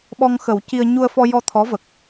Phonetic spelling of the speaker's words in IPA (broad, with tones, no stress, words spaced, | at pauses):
ɓɔ˧ŋxə˨˩˦wci˧ə̯ ɲu˧ə̯fɔ˧jɔ˧ t̪ʰɔ˧˥və˨˩k̚